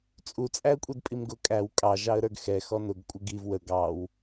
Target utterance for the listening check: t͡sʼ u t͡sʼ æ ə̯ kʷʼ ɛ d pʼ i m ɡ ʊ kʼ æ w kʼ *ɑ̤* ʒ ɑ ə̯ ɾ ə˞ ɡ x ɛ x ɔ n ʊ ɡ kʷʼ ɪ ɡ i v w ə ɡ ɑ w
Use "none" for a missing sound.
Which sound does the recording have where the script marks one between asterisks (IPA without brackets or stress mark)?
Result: ɑ